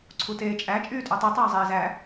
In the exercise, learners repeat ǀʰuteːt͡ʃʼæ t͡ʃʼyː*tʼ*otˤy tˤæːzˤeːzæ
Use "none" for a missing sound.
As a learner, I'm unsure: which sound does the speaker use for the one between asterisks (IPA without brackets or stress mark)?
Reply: tʼ